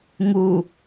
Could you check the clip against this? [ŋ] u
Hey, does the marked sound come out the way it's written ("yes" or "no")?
yes